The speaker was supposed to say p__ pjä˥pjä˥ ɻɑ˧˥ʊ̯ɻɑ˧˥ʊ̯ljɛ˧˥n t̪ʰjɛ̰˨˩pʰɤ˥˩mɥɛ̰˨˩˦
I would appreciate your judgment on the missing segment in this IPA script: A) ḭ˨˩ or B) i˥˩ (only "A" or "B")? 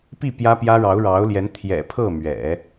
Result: B